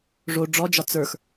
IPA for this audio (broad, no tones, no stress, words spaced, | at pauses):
ʐo ɖ͡ʐɔd͡ʒɒ t͡sə˞x